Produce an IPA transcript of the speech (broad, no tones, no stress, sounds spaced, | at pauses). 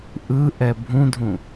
ʔ ɯ ʔ ɛ bʱ ũ dʱ ũ